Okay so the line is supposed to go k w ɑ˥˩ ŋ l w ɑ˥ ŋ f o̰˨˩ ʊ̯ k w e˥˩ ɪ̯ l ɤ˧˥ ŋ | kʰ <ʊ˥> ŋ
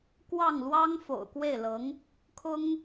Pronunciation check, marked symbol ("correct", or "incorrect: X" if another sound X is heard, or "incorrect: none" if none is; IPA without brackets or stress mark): correct